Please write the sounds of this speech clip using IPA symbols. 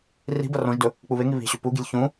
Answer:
ri̤bɐ rõʒdɵ | k͡puβeŋi βi̤ɕʉ puɡi̤lʲ çũ

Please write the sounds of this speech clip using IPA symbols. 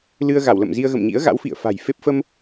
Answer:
lɨ˧ə̯ɣa˧˩w lə̰˧˨mzi˧ə̯ɣə̰˧˨m ɲḭ˧˥ə̯ɣa̰˧˥wfḭ˧˨ə̯ fa̤˨˩jfe˦˥p̚ fə˧m

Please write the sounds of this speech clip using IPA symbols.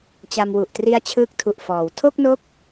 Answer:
t͡ɕa˧mwu˨˩ʔtri˦˥a̯ t͡ɕʰɯː˦˥k̚tʰu˨˩ʔfɔː˩˦w tʰo˥˩k̚no˦˥k̚

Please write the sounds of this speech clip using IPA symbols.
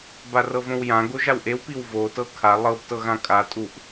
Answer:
barɤvõwjã ɡoʒawʔew piwvo tɤkʰa lˠɤb tɤɣãkʼa tʼuʔ

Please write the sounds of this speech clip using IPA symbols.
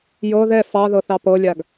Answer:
jɤ ðɛ fɑðɤθɑ pɤlʲaɡ

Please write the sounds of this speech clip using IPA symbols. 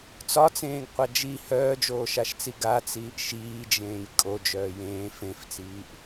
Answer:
t͡sɒt͡sẽːɡqʷa d͡ʒi hœːd͡ʒoːʃaʃt͡si ɡat͡siːʔ ʃiːd͡ʒẽːj kʼod͡ʒœː jẽː fẽft͡siːʔ

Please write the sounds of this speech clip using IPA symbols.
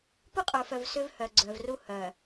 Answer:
pu˦qʼə˞˨fœ˨v sʏ˦vhœ˨ɡ͡ǀœ˨vru˦ hœ˨

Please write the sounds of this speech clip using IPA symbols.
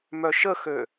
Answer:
mœʃəxø

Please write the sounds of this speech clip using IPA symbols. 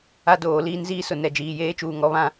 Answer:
a˦doː˨˦liː˦n ziː˦sʊ˨ nɛ˨ d͡ʒiː˨jeː˦t͡ʃuː˨ ŋɔ˦βã˦

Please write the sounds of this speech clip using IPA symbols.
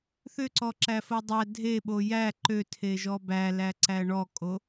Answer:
θʏǀɔǁæfo dˤæ dʱeɓo jæ ǃøtʰeʒɔ bælæǀæ ɳɔkʼo

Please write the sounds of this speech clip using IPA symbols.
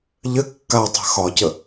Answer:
ʎɘ kːatˤa̤ xɒcə

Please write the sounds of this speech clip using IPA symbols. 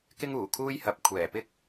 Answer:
kɪ˥ŋuː˨˩kʰuː˥jhɐ˨p̚ kʷʰɛː˨˩pɪ˥k̚

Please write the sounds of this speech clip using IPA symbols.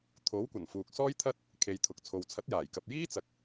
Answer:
t̪ʰo˨˥wkʷɐ˨˩n fuː˨k̚sɔː˥jt̪ʰɐ˥t̚ | kʰe˨jt̪ʰʊ˨k̚t͡sʰo˨w t͡sʰɐ˨˥t̚jaː˨˩jkɐ˨p̚jiː˥ t͡sɐ˨k̚

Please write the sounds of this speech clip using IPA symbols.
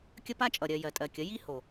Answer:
kʲə˦pa˦t͡ʃʼʌ˨ɾʲɜ˨ jɜ˨tʼɜ˨kʲə˨˦ ji˦ ho˨

